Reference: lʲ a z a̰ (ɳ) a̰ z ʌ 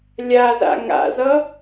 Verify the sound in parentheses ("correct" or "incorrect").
incorrect